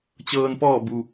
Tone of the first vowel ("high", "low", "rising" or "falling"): low